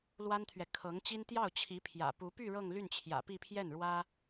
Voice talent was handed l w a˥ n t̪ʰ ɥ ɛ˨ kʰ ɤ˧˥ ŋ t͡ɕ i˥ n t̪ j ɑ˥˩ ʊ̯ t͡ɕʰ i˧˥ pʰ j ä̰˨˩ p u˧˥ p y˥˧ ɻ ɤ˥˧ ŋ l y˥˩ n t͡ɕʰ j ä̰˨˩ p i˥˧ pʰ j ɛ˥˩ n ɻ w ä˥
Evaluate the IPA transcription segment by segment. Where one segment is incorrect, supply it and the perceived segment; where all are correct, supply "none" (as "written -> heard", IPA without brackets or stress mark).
none